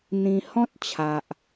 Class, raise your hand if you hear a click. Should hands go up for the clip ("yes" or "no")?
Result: no